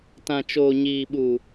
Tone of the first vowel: low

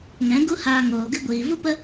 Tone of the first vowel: rising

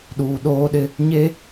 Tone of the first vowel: low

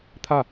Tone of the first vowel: falling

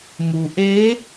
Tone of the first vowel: low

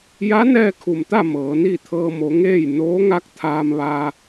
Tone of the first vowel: rising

